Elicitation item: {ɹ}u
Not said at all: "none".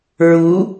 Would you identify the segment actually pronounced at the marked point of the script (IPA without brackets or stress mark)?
ɹ